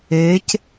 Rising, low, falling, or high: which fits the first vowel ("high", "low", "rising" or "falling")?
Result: rising